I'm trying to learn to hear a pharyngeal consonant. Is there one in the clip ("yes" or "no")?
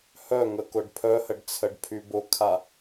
no